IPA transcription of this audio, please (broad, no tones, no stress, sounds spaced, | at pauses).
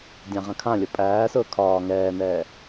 dʲ ã ʁ ɐ̃ kʰ ã lʲ ʊ pʼ æː s ʊː kʰ ɒː ŋ ɛː n ɛː